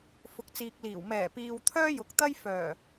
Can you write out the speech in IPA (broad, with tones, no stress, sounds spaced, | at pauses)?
f ʊ˨ k̚ t͡s iː˨ k̚ l iː˨˩ w m ɛː˨˩ p iː˨ w t̪ʰ œː˥ j ʊ˨ k̚ t̪ ɐ˥ j f œː˨˩